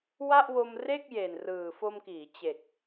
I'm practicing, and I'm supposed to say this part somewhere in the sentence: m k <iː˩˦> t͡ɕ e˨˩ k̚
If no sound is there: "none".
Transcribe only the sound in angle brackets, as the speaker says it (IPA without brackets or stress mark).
iː˩˦